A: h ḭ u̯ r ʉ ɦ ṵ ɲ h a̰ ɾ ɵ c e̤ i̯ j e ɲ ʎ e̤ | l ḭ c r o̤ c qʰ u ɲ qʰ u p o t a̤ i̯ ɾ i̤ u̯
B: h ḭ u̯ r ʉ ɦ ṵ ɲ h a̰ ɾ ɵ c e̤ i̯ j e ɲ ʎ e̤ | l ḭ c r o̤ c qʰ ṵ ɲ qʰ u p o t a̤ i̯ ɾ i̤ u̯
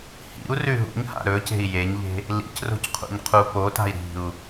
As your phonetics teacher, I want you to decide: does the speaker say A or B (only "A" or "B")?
B